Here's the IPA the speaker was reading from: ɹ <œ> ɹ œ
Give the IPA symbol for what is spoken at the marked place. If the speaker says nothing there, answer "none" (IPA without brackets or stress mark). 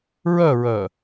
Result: œ